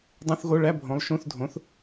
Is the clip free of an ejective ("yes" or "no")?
yes